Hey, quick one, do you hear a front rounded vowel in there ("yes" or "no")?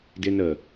no